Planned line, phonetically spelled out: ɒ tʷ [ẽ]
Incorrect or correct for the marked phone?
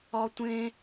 correct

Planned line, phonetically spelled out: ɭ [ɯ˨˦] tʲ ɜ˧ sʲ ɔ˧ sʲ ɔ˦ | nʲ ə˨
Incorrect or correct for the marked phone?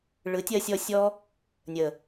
correct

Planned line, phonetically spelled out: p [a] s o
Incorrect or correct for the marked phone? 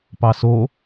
incorrect: ɑ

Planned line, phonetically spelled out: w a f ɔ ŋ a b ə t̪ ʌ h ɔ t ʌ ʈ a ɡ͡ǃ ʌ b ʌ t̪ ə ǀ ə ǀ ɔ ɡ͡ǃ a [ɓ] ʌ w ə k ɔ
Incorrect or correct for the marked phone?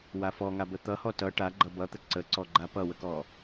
incorrect: p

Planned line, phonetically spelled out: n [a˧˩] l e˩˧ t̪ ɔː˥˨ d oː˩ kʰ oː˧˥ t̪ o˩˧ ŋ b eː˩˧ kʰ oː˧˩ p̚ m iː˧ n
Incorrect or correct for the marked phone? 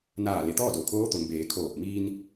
incorrect: aː˧˩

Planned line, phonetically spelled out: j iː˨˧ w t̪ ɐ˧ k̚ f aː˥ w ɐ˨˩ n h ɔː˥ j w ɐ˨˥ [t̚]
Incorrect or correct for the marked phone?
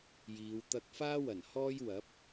incorrect: p̚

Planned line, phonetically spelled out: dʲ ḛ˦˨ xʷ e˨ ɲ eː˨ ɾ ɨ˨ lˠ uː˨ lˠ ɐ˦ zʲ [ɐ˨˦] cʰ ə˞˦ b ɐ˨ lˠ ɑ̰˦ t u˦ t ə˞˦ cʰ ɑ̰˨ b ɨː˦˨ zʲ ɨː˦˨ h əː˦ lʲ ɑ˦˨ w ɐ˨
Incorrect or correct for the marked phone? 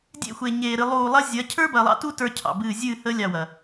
correct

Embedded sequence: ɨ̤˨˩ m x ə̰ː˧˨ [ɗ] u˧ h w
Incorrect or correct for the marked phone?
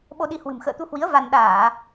incorrect: t̪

